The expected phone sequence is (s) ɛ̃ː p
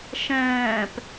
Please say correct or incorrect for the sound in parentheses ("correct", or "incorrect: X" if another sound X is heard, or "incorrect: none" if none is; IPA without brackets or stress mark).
incorrect: ʃ